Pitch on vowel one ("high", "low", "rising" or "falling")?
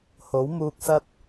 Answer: rising